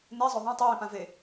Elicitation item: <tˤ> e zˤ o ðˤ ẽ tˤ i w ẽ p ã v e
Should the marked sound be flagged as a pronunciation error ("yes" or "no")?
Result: yes